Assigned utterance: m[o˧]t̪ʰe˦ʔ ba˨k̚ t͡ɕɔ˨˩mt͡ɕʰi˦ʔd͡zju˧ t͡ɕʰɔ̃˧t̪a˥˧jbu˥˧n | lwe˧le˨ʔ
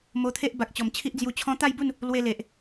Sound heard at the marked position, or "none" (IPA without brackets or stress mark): o˧